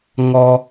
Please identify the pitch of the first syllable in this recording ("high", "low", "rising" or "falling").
high